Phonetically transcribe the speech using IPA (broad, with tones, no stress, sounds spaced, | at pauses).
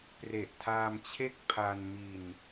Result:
p r e˨˩ ʔ tʰ aː˧ m t͡ɕʰ e˦˥ k̚ pʰ a˧ n m i˧ n